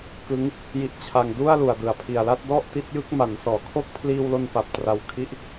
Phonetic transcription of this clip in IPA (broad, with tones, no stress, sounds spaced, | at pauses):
k ɯ˦˥ ŋ | j i˦˥ ʔ t͡ɕʰ a˧ ŋ d u˥˩ a̯ l u˨˩ a̯ d ɯ˨˩ a̯ pʰ i˨˩ a̯ l a˥˩ t̚ d ɔ˥˩ ʔ t i˦˥ t̚ j ɯ˥˩ k̚ m a˩˦ n s ɔː˩˦ kʰ o˥˩ k̚ pʰ l iː˧ w l o˧ n p a˨˩ p̚ t r a˨˩ w kʰ i˦˥ ʔ